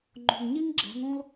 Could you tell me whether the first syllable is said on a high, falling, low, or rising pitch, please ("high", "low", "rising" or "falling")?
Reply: low